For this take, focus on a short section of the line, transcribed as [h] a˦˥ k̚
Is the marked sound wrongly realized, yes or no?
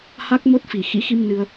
no